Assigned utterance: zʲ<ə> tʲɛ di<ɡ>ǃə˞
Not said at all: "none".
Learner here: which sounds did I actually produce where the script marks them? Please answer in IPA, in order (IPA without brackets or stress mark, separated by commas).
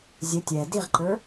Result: ə, ʁ